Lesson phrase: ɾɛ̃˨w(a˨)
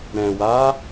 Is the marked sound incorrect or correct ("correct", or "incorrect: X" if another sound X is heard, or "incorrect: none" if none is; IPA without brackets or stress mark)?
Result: incorrect: a˨˦